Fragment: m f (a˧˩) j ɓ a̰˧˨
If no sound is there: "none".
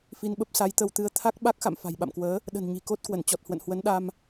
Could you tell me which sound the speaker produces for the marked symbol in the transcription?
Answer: a̤˨˩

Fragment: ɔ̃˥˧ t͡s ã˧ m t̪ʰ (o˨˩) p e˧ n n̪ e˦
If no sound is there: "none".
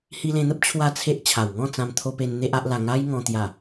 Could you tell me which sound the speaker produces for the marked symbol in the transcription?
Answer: o˧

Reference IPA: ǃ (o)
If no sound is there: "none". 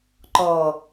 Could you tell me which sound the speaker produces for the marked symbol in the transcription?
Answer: ɔ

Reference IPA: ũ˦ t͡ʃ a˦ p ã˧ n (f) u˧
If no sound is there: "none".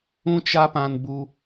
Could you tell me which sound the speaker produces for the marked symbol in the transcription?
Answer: b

